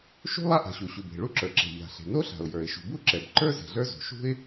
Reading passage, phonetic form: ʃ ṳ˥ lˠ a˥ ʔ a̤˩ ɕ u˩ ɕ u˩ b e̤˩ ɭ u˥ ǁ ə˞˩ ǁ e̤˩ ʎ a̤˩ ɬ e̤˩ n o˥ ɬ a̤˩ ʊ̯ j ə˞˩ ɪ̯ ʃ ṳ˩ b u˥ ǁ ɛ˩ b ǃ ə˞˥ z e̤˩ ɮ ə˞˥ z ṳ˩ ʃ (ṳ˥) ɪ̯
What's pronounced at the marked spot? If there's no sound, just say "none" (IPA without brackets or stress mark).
ṳ˥